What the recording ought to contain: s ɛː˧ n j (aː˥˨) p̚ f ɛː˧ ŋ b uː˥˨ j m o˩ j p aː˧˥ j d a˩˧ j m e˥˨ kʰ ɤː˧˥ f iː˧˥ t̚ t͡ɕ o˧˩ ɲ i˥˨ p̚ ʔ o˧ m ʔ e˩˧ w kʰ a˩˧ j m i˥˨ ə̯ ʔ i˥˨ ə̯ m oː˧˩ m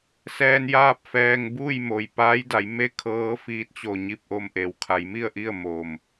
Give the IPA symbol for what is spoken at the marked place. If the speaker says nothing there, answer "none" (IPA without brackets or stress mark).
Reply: aː˥˨